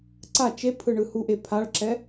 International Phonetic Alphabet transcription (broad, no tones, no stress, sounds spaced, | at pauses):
ǀ a t͡ʃ e pʰ ɯ ɳ ɯ h u ʔ e pʰ a ɭ ǁ ɛ